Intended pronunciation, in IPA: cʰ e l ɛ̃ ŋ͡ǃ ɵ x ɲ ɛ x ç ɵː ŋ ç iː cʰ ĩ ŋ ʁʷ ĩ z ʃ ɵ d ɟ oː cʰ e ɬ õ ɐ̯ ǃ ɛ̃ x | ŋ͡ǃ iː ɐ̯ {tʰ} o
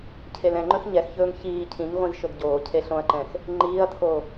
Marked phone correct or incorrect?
correct